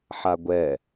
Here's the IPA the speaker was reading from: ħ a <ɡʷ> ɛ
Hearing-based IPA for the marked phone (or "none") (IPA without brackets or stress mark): ɡʷ